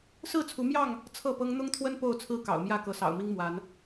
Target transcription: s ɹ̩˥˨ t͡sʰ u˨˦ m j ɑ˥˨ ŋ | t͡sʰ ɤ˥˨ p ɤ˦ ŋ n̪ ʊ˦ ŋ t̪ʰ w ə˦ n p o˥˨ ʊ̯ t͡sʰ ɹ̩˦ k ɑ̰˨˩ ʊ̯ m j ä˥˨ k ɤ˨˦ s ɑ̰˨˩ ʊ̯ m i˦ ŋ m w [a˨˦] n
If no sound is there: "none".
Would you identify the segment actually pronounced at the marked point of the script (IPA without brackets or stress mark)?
a˨˦